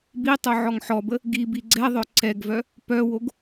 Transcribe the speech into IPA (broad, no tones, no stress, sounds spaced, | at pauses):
b i tˤ o ʕ ɔ ŋ ħ ɔ b ə | ɡ i b i ɡ͡ǀ ɛ ðˤ œ ǀ ɛ ɡ v œ | p œ w o ɡ